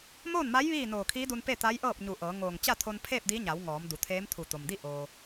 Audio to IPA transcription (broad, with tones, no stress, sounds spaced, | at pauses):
m oː˥˨ n m a˧˥ j ʋ iː˥˨ n oː˧˩ kʰ iː˧˥ d u˧ n p e˥˨ t̪ a˧˥ j ʔ ɤː˥˨ p̚ ɲ u˧˩ ʔ ɤː˩˧ ŋ oː˧˩ ŋ t͡ɕ a˥˨ t̪ʰ o˧ n pʰ eː˥˨ p̚ d i˧˥ ɲ a˩˧ w ŋ ɔː˩˧ m d u˩˧ t̪ʰ eː˧˥ m t̪ʰ u˧˩ t̪ o˩ m d i˥˨ ʔ oː˩